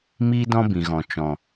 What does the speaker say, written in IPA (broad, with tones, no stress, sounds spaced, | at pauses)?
m iː˦ d ɔ̃˦ b ĩ˨ ɣ ɔ̃˨ t͡ʃ ɔ̃˨